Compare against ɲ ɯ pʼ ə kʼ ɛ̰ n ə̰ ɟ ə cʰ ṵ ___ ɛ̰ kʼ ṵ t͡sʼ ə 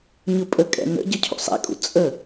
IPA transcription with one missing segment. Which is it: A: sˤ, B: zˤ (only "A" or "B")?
A